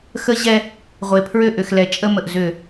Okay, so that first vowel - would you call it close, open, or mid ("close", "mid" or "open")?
mid